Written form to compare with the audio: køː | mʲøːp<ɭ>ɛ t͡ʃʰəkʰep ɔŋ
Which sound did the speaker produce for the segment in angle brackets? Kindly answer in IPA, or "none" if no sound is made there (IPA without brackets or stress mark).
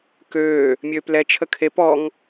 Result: l